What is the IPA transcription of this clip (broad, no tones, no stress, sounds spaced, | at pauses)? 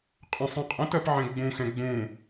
qʼ ə̃ sˤ ẽ qʼ ə̃ t ɜ p ʕ ɛ̃ ɡ͡b ũ x ɛ̃ ɡ͡b ũ